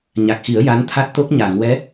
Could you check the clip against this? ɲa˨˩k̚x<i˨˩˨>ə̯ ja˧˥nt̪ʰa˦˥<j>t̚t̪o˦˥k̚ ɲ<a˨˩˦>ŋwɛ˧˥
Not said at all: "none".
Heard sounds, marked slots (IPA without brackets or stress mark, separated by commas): i˨˩˦, none, a˨˩˨